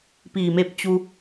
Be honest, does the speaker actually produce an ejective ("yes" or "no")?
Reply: no